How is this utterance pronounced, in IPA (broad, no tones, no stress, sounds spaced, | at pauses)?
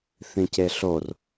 θ ĩ c e ɬ o r